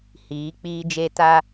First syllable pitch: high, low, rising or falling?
rising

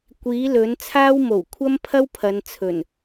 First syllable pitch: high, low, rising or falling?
rising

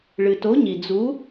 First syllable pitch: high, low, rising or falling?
low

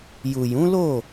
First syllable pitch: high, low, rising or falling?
low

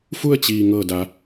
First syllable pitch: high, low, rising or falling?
falling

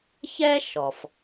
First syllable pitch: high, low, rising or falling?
high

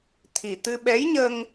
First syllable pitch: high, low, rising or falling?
low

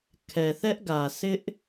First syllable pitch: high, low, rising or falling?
low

